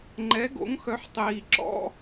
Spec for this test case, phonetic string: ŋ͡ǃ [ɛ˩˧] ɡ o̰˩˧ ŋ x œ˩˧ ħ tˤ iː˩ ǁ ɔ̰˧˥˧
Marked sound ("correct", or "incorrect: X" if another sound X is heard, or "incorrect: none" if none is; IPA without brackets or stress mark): correct